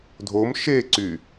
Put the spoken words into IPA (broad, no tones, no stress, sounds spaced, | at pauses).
dʱ o m ʃ e ǀ y